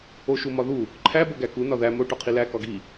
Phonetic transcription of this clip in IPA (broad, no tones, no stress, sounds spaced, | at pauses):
o ʃ u m ɒ ð u | ǃʰ æ b o ɡ æ k u n ɒ ð æ m o ʈ ɒ qʰ i l æ k ɒ ɡ i